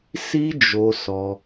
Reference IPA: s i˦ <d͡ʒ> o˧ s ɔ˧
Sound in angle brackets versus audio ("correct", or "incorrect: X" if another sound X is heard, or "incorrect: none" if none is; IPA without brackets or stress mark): correct